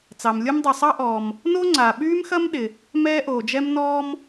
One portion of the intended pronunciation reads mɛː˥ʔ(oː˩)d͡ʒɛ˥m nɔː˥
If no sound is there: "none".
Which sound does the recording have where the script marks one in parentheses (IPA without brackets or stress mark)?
oː˩